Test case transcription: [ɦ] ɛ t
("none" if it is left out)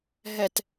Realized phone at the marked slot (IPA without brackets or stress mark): ɦ